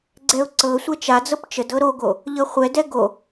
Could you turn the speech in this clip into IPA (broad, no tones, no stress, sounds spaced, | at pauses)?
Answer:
ɡ͡ǀ ɛ ʊ̯ ǀ ɤ sʷ ɛ t͡ʃ a d͡z ɤ p t͡ʃ ə d ɤ ɾ o ɡ o | ʎ ɤ χʷ ɛ d ɛ ɡ o